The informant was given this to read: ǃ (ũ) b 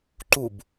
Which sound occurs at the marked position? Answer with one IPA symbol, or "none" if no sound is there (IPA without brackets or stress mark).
u